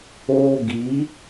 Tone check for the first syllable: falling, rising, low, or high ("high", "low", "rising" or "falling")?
high